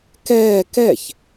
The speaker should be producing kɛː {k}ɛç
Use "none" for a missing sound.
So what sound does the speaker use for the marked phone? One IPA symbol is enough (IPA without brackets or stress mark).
k